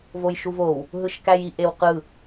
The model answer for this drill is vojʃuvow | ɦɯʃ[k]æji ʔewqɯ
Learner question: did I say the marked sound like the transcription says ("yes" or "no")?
yes